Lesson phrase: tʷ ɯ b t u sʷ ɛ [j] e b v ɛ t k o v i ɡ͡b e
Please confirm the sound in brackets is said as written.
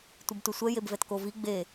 yes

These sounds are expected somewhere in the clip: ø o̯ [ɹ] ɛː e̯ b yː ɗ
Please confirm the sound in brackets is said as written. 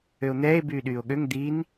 no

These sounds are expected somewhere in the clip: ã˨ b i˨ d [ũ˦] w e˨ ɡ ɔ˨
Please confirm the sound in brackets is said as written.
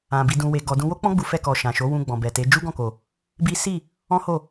no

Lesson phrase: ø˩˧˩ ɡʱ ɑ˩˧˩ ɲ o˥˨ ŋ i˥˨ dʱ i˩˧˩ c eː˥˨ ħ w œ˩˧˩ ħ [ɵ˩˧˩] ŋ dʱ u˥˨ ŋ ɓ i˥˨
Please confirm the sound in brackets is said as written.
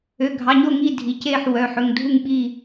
yes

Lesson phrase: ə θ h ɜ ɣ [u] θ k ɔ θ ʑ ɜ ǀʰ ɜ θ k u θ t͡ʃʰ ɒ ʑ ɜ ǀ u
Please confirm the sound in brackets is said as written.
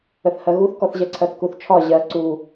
yes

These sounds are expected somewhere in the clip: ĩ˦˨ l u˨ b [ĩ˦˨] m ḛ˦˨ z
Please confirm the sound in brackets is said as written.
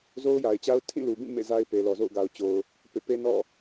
yes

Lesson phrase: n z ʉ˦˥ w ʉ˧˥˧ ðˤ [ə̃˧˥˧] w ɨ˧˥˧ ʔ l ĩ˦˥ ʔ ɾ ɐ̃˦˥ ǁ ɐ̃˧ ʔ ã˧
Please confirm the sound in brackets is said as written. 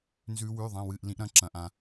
no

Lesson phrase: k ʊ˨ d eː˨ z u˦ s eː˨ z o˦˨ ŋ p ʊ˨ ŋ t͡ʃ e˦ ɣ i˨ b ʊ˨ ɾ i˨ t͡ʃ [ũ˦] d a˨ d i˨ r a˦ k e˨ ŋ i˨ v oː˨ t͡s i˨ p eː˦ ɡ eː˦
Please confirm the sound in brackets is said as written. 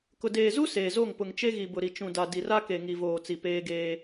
no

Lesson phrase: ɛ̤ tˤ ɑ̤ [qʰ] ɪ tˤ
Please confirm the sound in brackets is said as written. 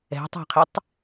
yes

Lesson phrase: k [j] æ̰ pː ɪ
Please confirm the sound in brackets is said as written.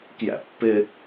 yes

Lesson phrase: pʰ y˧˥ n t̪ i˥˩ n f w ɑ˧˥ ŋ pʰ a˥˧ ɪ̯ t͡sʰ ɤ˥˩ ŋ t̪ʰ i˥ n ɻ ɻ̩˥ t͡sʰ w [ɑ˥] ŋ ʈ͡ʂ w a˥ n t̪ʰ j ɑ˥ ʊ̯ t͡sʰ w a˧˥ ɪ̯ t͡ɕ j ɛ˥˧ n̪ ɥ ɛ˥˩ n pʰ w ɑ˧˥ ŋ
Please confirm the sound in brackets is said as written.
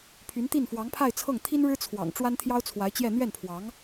no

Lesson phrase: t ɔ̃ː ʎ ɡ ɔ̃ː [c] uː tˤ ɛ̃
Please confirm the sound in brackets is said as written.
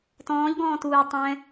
no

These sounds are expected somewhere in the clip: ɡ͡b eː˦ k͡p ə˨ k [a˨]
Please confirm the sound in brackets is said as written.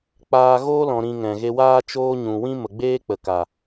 yes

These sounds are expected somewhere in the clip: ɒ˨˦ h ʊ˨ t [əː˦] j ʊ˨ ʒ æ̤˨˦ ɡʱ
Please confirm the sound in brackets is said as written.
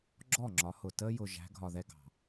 yes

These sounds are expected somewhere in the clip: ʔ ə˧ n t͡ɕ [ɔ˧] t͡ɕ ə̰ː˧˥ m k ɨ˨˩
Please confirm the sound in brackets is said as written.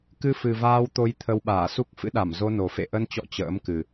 no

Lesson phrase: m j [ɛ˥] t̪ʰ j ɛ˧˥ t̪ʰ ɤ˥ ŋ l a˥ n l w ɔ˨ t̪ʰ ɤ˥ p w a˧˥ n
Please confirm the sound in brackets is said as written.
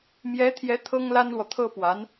no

